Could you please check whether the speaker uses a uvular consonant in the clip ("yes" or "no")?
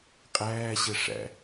yes